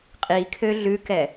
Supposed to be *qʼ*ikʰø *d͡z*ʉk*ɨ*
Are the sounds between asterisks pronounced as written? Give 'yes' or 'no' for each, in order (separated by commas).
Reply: yes, no, no